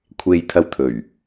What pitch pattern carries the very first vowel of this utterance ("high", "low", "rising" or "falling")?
low